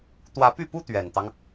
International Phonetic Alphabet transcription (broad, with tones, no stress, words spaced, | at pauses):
t̪wä˧˥py˥˩pu˥ t̪ɥɛ˨˩nt̪ɑ˦ŋ